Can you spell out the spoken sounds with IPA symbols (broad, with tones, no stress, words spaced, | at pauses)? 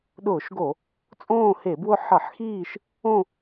ɗʊː˧˩˧ʃɡo˧˩˧ | t͡sʼõː˦˨he˧˩˧bwʊ˦˨ ħʌ˧˩˧ħxiː˦˨ʃ | õ˦˨